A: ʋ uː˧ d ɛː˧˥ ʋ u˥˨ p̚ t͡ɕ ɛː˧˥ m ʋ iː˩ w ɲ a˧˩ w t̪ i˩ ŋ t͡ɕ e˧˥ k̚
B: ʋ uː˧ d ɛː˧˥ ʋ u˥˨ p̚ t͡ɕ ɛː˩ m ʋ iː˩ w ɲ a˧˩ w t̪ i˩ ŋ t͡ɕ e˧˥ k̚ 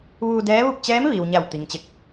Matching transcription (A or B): A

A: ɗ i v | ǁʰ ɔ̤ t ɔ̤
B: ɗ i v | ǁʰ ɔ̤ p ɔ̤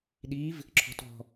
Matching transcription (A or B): A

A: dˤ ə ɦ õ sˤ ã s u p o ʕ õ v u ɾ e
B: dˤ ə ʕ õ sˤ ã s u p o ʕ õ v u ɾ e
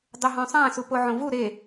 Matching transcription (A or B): A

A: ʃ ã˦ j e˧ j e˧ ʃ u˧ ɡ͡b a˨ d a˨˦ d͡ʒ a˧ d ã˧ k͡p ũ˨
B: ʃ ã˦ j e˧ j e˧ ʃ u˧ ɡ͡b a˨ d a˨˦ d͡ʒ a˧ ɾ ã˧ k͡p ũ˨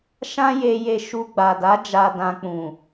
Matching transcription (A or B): A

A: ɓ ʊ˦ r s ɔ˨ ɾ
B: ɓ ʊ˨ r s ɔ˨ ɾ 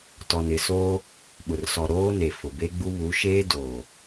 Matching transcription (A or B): B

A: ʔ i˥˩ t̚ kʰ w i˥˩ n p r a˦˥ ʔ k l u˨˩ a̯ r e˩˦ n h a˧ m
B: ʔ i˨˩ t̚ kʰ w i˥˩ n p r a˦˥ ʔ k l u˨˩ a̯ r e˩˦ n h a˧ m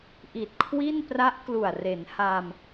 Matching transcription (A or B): B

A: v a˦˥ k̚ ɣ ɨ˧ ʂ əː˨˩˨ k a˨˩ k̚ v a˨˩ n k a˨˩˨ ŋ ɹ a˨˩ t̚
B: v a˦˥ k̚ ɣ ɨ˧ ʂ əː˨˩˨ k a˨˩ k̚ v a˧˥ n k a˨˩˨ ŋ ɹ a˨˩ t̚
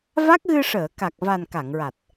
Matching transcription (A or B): A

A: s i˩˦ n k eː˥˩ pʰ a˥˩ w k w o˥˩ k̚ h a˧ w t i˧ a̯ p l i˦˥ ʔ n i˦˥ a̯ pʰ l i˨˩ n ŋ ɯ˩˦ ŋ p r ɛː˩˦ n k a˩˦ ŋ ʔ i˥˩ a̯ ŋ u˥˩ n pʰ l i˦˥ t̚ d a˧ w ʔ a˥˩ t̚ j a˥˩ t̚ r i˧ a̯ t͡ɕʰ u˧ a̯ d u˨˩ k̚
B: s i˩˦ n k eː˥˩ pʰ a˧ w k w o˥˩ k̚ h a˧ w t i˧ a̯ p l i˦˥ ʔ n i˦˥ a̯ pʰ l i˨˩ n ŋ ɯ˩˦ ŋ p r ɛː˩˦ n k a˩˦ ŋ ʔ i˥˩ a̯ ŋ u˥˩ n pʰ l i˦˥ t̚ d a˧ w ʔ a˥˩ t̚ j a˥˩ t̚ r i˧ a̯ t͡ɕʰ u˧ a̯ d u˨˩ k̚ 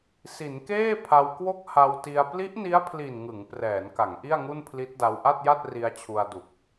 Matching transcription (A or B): B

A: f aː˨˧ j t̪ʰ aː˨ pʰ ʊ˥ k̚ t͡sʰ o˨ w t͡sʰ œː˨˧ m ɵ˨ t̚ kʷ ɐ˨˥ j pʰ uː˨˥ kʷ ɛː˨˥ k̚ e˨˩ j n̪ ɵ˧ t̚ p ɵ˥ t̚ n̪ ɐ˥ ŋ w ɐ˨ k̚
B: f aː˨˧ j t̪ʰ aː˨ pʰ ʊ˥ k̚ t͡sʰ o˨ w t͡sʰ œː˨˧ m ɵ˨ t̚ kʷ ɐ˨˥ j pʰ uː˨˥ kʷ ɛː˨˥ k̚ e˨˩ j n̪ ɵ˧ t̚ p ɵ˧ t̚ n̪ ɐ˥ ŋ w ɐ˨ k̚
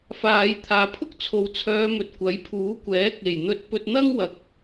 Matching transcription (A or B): B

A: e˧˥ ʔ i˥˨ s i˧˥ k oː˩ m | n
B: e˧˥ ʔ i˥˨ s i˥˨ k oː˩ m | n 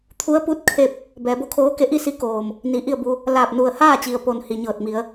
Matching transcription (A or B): A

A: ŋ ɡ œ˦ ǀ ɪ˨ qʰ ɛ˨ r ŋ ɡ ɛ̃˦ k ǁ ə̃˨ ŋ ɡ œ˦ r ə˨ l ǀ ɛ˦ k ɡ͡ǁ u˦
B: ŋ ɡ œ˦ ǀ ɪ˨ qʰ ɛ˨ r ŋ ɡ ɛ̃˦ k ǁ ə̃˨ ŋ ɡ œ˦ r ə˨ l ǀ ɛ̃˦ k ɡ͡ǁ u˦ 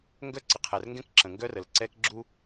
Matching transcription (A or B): A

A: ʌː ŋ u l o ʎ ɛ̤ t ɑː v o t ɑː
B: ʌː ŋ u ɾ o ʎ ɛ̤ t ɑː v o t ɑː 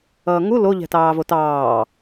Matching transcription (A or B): A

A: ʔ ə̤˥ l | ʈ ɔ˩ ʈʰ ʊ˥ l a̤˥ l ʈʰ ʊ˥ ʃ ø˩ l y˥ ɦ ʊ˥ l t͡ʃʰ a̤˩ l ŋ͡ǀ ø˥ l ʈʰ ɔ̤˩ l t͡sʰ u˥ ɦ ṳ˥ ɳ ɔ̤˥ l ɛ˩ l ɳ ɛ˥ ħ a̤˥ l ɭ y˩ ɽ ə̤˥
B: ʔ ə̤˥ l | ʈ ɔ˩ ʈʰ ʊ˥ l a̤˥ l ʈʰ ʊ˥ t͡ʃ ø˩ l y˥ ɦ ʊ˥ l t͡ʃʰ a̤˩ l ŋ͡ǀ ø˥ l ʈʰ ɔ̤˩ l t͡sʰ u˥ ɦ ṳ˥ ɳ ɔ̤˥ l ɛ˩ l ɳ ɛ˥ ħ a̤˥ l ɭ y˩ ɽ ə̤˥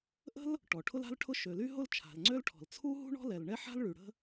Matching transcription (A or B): A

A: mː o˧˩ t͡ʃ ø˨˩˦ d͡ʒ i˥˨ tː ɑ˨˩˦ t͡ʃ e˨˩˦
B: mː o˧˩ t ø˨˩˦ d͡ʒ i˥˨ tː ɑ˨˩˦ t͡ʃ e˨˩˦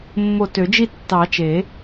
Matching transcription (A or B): B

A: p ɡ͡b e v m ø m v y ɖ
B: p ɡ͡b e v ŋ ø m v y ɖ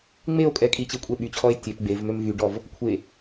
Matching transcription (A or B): A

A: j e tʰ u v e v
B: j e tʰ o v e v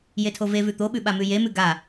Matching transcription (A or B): B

